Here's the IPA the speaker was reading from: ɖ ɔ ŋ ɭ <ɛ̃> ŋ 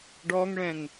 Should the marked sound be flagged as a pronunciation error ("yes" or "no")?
no